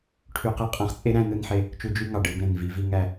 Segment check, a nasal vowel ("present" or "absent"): present